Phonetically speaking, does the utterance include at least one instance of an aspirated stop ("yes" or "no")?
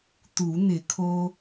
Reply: yes